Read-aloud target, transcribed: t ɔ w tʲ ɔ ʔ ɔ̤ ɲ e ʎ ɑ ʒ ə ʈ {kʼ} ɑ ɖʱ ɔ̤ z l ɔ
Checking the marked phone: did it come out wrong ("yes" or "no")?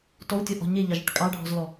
no